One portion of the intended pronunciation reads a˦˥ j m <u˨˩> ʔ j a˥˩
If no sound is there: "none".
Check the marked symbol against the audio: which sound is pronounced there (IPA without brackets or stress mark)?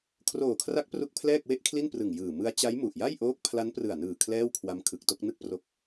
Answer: u˨˩